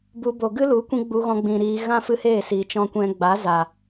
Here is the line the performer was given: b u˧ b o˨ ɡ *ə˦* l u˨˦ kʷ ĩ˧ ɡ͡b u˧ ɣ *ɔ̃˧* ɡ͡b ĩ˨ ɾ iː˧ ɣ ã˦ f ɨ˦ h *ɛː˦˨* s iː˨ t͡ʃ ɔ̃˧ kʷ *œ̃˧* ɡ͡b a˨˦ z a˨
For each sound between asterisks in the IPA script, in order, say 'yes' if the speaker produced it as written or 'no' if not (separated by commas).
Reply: no, yes, no, no